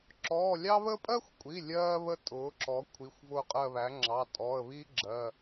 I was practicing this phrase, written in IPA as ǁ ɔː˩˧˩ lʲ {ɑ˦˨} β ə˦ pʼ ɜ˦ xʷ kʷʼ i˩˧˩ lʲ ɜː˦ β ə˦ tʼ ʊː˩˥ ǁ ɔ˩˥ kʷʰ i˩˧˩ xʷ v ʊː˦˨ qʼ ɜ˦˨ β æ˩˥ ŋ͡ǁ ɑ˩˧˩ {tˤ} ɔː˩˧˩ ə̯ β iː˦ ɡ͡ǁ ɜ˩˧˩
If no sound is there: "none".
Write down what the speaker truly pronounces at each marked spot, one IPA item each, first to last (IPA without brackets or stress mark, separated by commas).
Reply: ɑ˦, tʼ